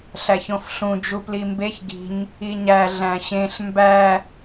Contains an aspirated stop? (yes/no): no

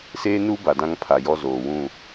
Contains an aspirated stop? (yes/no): yes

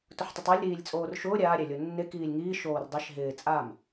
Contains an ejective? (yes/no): yes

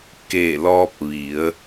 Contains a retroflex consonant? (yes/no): no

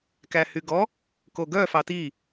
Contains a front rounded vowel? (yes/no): yes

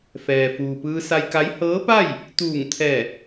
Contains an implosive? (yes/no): no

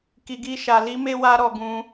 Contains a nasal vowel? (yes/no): yes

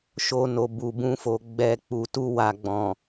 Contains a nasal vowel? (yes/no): yes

